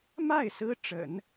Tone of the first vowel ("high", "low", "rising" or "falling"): falling